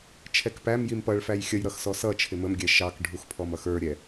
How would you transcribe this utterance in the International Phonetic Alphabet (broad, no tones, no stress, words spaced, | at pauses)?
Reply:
t͡ʃʰɛkpæm jimpʌɭ fæjxʲəj ɾʌxsɔsʌ t͡ʃʰɪməm ɡʲɛʃɑk ɖʱuxpʰɔmʌxə˞ ɾʲɛ